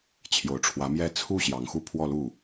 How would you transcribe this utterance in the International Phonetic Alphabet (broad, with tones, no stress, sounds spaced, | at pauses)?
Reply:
t͡ɕʰ j o˨˩ ʊ̯ ʈ͡ʂʰ w ä˧˥ m j ɛ˥˧ t͡sʰ u˥˩ ɕ j ɑ˧˥ ŋ x u˥˧ pʰ w ɔ˥˧ l u˥˩